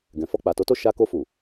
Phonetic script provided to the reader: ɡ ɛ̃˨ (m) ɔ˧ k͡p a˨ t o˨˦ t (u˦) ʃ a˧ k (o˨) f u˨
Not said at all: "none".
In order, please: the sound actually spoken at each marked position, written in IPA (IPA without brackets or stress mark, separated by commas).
f, o˦, o˧